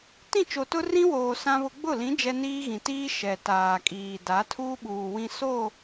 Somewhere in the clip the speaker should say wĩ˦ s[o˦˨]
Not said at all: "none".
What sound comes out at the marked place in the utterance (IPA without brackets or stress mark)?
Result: o˦˨